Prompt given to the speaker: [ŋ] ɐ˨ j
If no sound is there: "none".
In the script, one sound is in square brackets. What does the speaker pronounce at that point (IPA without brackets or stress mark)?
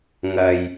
ŋ